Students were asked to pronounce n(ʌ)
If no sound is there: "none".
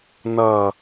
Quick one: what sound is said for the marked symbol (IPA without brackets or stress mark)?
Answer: ʌ